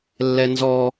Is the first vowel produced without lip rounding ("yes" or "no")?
yes